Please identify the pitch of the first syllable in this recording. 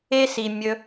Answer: high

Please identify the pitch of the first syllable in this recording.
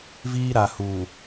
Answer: high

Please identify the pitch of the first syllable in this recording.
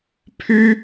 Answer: high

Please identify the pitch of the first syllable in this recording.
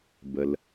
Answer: low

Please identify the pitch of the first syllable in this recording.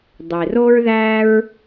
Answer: low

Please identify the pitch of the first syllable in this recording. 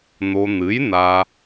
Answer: low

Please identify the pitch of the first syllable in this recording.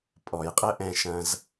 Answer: low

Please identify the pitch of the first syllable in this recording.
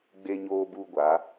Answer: high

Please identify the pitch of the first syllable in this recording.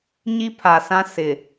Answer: high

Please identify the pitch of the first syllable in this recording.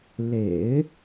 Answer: low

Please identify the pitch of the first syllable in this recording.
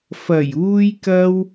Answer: low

